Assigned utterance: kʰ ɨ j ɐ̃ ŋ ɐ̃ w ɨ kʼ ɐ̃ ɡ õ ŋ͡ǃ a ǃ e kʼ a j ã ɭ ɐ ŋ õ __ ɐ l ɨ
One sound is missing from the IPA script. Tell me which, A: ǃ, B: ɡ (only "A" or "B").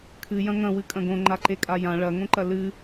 A